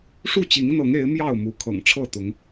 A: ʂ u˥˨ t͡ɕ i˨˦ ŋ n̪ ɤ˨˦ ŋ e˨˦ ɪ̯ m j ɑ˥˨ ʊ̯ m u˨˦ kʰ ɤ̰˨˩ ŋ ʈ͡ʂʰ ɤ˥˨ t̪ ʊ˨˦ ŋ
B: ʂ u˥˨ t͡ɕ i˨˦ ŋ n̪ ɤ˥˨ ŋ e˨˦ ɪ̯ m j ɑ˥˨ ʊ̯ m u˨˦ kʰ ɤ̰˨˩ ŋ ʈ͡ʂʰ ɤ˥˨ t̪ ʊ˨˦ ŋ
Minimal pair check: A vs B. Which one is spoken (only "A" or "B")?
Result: A